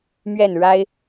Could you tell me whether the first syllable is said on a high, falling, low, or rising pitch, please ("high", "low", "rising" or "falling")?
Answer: falling